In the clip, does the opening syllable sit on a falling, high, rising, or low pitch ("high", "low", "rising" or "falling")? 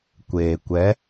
low